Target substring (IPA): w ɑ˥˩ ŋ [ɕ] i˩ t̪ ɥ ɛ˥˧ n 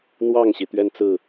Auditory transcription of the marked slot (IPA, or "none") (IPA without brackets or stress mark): ɕ